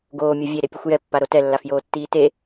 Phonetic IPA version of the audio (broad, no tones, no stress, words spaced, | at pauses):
ɡoːmʲɤ vʲeɾepʲɯxʷ jɛpːaɾo tɛlːafjoːtːiː te